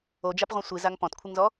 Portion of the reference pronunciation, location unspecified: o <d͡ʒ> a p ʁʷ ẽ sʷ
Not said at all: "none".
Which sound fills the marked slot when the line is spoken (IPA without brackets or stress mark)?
d͡ʒ